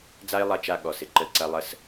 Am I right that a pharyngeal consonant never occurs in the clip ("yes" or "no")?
yes